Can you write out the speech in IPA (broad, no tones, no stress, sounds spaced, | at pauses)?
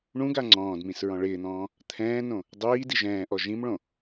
ɳ ũ ɡ a ŋ͡ǀ ɔ̃ː d m ĩ s ɹ ɔ̃ ɭ ɪː n̪ ɔ̃ː | t̪ʰ ɛ̃ː n õ | dˤ iː d i ʒ ɛ̃ː ʔ ɔ ʒ ĩ m ɭ õ